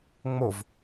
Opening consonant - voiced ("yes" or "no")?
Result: yes